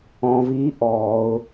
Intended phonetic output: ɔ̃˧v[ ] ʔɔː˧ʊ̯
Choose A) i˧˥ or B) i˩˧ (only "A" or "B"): A